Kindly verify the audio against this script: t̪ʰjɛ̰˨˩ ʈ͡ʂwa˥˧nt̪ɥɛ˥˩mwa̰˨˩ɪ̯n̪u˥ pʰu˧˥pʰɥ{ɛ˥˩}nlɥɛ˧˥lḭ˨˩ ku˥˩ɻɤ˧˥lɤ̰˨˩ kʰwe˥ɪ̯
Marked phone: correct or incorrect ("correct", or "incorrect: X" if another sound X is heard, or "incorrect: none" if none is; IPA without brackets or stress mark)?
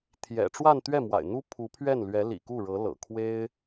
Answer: correct